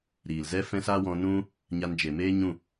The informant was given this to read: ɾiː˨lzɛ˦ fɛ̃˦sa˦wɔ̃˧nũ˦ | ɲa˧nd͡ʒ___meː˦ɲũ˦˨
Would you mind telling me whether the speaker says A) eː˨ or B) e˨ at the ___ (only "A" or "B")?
B